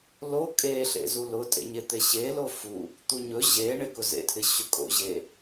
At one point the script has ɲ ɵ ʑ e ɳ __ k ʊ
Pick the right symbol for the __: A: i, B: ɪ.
B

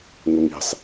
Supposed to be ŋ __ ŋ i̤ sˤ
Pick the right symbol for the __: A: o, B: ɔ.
A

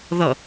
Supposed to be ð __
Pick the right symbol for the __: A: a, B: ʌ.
B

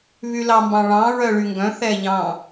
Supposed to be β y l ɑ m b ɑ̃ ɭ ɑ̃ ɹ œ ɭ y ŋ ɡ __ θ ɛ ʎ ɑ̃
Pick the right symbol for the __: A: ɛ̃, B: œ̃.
B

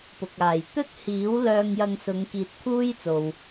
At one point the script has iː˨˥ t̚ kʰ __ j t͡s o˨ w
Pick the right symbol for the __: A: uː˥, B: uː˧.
A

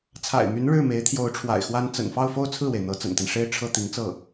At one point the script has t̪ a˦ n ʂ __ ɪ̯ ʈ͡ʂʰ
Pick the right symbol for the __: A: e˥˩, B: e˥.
B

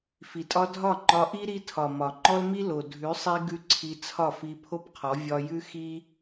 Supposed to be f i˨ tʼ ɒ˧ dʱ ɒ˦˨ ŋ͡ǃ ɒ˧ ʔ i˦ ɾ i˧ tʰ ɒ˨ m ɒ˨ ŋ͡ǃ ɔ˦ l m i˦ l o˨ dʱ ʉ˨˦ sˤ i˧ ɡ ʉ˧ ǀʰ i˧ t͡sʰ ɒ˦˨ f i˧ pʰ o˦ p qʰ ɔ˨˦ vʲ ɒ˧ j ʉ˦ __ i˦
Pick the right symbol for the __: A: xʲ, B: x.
B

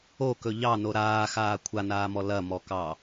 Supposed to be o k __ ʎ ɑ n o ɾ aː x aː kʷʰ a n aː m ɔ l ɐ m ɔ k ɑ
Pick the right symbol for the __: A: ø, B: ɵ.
B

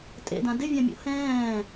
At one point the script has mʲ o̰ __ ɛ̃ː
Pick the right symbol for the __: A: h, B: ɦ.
A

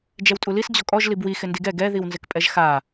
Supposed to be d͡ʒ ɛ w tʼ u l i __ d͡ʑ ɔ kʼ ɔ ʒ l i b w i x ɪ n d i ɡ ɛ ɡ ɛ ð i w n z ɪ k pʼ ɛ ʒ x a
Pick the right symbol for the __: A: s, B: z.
A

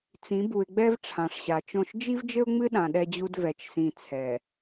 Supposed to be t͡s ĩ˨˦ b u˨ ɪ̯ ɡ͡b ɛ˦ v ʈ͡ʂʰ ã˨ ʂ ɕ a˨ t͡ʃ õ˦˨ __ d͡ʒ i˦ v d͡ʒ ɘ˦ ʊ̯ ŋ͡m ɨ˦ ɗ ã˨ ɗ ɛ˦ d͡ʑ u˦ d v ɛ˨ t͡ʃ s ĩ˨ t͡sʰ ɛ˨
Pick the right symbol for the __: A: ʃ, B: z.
A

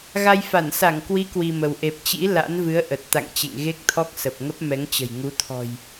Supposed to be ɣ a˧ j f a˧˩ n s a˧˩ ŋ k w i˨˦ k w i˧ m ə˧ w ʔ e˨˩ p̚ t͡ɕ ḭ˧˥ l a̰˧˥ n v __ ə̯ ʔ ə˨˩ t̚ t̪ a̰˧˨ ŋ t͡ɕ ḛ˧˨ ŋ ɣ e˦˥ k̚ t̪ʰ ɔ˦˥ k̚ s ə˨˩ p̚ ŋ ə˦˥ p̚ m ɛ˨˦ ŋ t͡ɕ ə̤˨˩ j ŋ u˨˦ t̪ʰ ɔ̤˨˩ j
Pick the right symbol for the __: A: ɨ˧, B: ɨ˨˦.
B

